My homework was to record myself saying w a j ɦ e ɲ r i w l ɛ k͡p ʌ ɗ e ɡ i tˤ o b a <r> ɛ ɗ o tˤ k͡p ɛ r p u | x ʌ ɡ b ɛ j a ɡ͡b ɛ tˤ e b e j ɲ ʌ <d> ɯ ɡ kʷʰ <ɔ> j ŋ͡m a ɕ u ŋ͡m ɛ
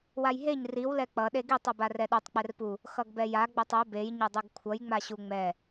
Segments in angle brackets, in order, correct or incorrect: correct, incorrect: dˤ, incorrect: ʌ

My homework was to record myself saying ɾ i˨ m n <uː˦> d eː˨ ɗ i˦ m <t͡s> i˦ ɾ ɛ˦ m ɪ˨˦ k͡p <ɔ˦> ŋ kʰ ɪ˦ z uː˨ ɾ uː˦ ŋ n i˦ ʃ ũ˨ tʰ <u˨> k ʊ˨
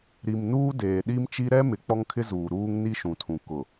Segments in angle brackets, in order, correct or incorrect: correct, incorrect: t͡ʃ, correct, incorrect: ũ˨

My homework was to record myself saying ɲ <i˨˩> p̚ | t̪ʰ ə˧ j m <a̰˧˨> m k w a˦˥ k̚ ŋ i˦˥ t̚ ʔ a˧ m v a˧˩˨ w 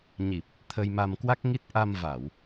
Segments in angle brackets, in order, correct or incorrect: correct, incorrect: a˧

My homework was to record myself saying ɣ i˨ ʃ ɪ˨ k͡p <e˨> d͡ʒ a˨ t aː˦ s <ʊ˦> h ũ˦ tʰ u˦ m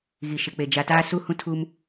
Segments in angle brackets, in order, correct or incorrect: correct, incorrect: u˦

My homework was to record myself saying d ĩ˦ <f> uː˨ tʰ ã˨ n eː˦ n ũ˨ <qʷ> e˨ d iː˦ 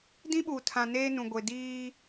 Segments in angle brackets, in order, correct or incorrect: incorrect: ɓ, incorrect: ɡʷ

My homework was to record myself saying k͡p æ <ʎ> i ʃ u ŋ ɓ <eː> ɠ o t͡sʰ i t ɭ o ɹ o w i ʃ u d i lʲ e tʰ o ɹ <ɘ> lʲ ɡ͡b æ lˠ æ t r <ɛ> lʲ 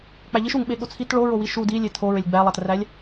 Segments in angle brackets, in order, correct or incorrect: correct, incorrect: e, incorrect: e, incorrect: æ

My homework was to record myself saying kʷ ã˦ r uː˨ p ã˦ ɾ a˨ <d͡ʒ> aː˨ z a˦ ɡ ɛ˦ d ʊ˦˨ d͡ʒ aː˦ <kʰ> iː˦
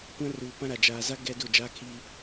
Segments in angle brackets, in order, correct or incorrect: correct, correct

